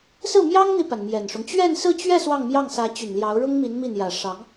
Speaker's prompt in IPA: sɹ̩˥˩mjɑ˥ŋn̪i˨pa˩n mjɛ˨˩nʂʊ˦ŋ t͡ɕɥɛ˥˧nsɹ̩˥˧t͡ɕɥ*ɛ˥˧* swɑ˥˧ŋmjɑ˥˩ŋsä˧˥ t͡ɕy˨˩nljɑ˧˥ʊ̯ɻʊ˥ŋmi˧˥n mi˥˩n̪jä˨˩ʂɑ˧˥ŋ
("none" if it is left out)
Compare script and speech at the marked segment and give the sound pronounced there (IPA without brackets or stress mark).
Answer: ɛ˥˧